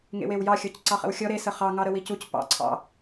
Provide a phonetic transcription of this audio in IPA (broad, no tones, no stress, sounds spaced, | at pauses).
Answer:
ŋ ḛ w e w j ɑ xʲ ɔ c ǀ ɑ χ ə̰ w xʲ ɔ ɾ e s ə χ ɑ ŋ ɑ ɾ ə w i c u c p ɑ̰ ǀʰ ɑ̰